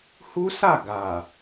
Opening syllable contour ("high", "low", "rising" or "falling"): high